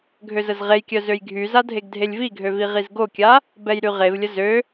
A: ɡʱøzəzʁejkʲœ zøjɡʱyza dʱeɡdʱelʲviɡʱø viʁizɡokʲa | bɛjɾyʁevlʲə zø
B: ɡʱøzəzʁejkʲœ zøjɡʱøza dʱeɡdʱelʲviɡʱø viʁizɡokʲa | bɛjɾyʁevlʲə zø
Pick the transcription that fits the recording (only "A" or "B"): A